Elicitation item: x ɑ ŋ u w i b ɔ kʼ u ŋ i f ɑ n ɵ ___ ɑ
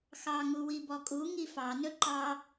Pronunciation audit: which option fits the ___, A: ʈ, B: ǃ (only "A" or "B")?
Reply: B